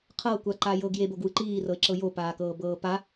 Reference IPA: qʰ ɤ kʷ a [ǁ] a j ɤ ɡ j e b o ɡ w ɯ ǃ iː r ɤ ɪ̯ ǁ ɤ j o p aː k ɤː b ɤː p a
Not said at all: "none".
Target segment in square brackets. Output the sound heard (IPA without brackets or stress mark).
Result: ǃ